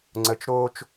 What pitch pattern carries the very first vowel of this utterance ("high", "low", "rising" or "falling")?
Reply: low